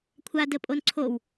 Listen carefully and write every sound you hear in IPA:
kʷʰ a d ə pʼ o n ǀʰ o w

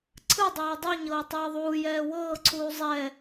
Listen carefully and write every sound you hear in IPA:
ǀʰ ɯ dˤ ɛː dˤ u ɲ ɤː tˤ ɛː ðˤ uː j ɛː w ɤː ǀʰ uː zˤ ɛ

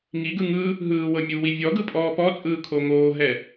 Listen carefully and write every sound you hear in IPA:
ŋ i ɡ ɯ ŋ ɯ | ɦ ɯː w ɤ mʲ u w i vʲ ɔ ɡ ɯ pʼ ɔː p ɔ t͡sʼ ɯː kʰ o ŋ oː ɦ ɛ

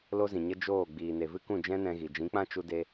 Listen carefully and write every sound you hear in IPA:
l o˦ z ĩ˨ ɲ ə˦ d͡ʒ oː˦˨ ɡ͡b iː˨ n e˨ v ɨ˦ k ũ˦˨ d͡ʒ ɛ̃˦ n ɛ̃˧ ɣ i˨ d͡ʒ ĩ˨˦ k͡p ã˦ t͡ʃ u˧ d e˧

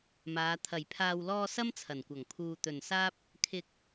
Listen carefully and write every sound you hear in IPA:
m aː˨˧ t̪ʰ ɐ˨˩ j pʰ aː˨ w l ɔː˧ s ɐ˥ m t͡sʰ ɐ˨˩ n kʷ ɐ˨˩ ŋ pʰ uː˨ t̪ ɵ˨˩ n s aː˥ p̚ | kʰ ɪ˧ k̚

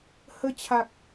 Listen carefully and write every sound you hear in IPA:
h ə˧ t͡ɕʰ a˨ k̚

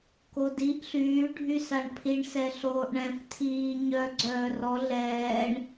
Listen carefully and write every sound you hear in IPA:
k o d i ʔ ɬ yː ɖʱ y s a ɳ pʰ i ɳ s ɛ ɬ oː ʔ ɳ ɛ̃ f tʰ iː ɲ œ ɡ͡ǀ œː r ɔ ɮ ɛː ɳ

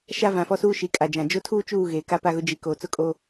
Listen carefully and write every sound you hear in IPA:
ʃ a˦ v ã˨ f ɔ˦ s uː˦ ʃ i˨ kʼ a˨ d͡ʒ ã˨ d͡ʒ o˦ tʰ uː˦ t͡ʃ uː˦˨ ɣ eː˨ k a˦ p a˦ ɣ ʊ˦ d͡ʒ i˨˦ k oː˨ t͡s ʊ˦˨ kʼ oː˦

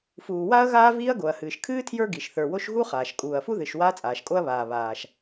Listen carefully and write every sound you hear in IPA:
f uː˩ w a˥ ɐ̯ ɣ aː˥ v iː˥ ɐ̯ ɡ o˩ ɐ̯ h ɨː˩ ʃ kʰ ɨː˥ tʰ j ə˞˥ ɡ i˩ ʃ θ ə˞˩ w o˥ ʃ ɣ u˥ χ aː˩ ʃ kʼ uː˩ ɐ̯ f u˥ ð ɨ˩ ʃ w aː˥ t͡sʼ aː˩ ʃ kʼ o˥ ɐ̯ β aː˩ β aː˩ ʃ

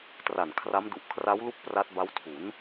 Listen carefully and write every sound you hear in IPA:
t r a˨˩ n kʰ r a˦˥ m d u˨˩ ʔ kʰ r a˦˥ w l u˥˩ k̚ p r a˦˥ t̚ b a˦˥ w tʰ u˩˦ n

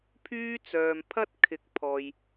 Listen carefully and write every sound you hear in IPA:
pʰ yː˥ t͡s œː˨ m pʰ ɐ˥ t̚ kʰ ɪ˨˥ k̚ pʰ ɔː˨ j

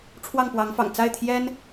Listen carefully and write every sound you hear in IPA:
ʈ͡ʂʰ w ɑ˥˩ ŋ p w ɑ˧˥ ŋ f ɑ̰˨˩ ŋ t͡s a˥˩ ɪ̯ t̪ʰ j ɛ˥ n

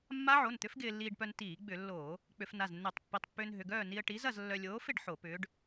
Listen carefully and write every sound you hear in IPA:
mː a˦˥ ʕ o˩˧˩ n t̪ ʏ˦˥ f ɡ ɪː˧ lː iː˧ ɖ p œ˧ n t iː˧˩˧ ɡ͡b ʏ˧˩˧ lː oː˧˩˧ | k͡p ʏ˧˩˧ f n a˩˧˩ z nː e˧˩˧ tˤ pː i˩˧˩ tˤ pː ʏː˧ n ɦ ʏ˩˧˩ ɡ œː˥˨ n i˧ ə̯ ʈ i˨˥ z ɐ˥˨ z lː œ˧ lʲ oː˨˥ f ɪ˥˨ ɖ ħ o˧˩˧ p ʏː˨˥ ɖ

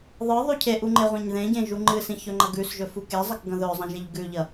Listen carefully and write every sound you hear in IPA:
ðˤ ɨ ðˤ ʉ cʰ e ʔ u ŋ͡ǃ e ʁʷ ẽ ɲ ð ẽ ɟ ẽ ʒ u ŋ͡ǃ ɨ s ĩ ç ɵ ŋ͡ǃ ɐ ɡ ʉ s ʒ ɵ f u k e zˤ ɐ k ɡ ɐ̃ ð ɵ zˤ ɐ̃ ʒ e ʎ ɡ ʉ ʎ ɐ

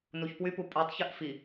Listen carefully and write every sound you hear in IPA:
n u ç p w y p u pʼ y tˤ ç ʉ ʔ f i

